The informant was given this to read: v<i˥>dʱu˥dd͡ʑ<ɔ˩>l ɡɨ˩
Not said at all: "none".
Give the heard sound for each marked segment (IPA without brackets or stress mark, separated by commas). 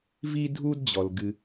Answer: i˥, ɔ˩